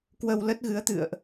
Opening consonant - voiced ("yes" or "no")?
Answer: no